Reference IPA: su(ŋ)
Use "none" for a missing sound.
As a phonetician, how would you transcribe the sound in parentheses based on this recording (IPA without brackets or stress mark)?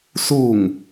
ŋ